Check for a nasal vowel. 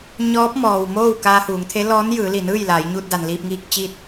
absent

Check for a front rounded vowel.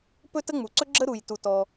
absent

